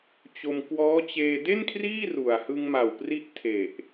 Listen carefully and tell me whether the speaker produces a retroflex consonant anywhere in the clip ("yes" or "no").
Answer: no